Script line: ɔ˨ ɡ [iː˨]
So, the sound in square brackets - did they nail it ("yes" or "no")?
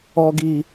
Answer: yes